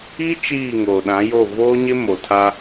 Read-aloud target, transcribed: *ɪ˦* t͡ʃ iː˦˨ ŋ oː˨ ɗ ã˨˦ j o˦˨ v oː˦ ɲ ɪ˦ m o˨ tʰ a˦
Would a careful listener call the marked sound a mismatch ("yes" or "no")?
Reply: yes